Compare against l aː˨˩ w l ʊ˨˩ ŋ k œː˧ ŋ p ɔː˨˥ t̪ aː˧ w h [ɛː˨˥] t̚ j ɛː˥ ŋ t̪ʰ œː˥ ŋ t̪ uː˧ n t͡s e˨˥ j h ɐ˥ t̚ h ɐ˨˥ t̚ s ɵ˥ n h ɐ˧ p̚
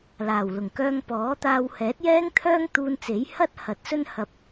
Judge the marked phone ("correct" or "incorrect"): correct